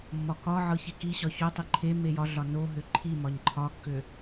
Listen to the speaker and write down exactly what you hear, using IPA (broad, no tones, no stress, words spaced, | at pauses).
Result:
mːɒkɒʕɤ çekiɕɒ çotˤi ǃʰe mejɒɮɒ noɦø ǃʰimɒɲ ǃʰɒkːø